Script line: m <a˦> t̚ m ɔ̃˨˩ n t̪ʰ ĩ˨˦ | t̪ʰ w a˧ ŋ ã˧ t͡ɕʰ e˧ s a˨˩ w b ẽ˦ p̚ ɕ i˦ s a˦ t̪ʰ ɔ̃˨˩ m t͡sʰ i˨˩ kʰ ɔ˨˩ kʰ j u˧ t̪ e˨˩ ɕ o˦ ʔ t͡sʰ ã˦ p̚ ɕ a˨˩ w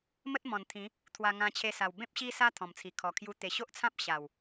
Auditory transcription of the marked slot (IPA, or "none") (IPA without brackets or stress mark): ə˦